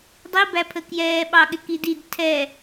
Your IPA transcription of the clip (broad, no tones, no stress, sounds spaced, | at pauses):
dˤ i b æ pʰ ə k j ɛː ɓ ɑ ɠ ɪ k i d i d tʰ ɛ